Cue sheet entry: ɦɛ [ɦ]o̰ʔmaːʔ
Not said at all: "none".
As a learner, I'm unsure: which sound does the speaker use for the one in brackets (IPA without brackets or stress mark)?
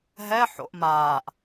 ħ